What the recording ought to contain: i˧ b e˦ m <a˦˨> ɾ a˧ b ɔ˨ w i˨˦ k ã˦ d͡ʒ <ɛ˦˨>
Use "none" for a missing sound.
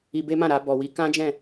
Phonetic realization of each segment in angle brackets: ã˦˨, ɛ̃˦˨

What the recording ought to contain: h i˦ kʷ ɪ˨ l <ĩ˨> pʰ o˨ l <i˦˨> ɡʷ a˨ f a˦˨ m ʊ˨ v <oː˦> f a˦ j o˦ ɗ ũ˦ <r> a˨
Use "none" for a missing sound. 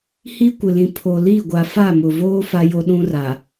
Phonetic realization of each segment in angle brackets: ĩ˨, i˦˨, oː˦, r

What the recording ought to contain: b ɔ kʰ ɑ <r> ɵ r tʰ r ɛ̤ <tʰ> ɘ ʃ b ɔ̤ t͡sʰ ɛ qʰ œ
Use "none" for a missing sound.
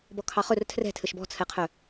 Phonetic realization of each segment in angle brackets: χ, tʰ

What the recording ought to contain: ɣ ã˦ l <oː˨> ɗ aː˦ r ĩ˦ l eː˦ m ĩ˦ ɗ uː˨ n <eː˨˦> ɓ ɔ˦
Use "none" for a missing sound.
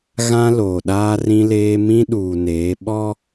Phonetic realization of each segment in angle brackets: oː˨, eː˨˦

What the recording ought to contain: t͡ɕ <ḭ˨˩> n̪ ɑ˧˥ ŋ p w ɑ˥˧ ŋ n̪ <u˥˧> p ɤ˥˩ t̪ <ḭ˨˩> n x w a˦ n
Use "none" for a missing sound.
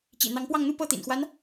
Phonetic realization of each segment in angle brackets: ḭ˨˩, u˥˧, ḭ˨˩

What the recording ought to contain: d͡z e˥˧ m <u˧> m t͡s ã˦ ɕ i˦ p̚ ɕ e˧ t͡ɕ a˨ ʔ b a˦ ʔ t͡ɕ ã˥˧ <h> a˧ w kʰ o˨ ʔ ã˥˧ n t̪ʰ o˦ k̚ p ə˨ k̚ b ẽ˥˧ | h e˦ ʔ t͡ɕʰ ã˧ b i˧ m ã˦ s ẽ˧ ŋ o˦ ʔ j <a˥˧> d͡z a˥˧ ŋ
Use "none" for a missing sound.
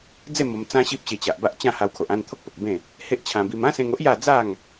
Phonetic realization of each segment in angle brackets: o˧, h, a˥˧

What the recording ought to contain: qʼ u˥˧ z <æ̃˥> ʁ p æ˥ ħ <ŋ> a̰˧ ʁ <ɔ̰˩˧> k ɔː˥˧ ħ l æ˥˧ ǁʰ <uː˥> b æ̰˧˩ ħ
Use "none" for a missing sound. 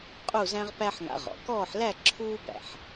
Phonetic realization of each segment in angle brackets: æ̃˥, ŋ, ɔ̰˩˧, uː˥

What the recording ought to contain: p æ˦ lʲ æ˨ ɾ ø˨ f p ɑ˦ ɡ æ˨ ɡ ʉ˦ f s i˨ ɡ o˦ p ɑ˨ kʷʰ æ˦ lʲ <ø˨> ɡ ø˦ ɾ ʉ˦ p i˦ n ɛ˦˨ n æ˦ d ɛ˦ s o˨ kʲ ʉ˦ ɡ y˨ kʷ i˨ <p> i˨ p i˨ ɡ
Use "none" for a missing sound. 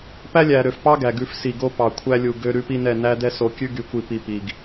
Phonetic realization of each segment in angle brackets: u˨, p

